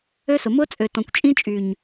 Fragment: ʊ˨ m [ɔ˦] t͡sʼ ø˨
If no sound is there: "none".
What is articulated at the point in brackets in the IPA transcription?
ʊ˦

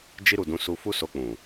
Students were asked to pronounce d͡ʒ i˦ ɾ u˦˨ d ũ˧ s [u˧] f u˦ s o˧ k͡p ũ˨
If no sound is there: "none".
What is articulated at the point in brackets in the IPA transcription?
u˧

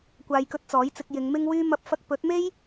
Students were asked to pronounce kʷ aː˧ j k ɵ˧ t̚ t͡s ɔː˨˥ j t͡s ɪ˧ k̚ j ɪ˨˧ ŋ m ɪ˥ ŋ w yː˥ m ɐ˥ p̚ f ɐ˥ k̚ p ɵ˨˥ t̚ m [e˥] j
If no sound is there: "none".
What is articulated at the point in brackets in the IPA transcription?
e˥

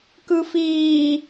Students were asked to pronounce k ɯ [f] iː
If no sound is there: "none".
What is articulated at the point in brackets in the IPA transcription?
f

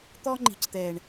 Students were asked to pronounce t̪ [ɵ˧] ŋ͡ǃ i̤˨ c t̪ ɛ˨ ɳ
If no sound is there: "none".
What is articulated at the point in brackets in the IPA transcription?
ɔ˧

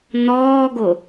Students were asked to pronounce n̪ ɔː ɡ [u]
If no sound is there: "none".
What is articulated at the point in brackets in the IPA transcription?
o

